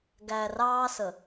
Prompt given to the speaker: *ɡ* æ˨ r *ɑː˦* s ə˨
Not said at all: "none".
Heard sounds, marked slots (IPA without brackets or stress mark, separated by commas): ɡ, ɑː˦